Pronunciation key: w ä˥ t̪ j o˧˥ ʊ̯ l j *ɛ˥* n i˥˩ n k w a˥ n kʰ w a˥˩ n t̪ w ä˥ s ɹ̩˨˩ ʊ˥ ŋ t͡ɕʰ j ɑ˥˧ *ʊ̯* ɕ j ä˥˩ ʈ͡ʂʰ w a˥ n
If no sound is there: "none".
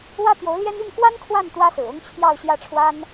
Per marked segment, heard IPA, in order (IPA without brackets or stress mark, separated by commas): ɛ˥, ʊ̯